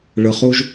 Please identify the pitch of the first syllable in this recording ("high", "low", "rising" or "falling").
low